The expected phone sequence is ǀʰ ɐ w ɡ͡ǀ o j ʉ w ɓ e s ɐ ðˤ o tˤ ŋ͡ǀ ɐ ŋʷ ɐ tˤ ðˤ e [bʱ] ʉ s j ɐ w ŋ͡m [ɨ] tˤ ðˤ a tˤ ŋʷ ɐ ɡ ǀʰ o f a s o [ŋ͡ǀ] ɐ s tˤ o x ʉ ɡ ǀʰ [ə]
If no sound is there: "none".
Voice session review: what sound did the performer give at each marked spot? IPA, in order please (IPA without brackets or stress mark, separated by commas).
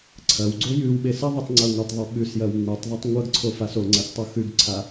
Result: ɓ, ɨ, ŋ͡ǀ, a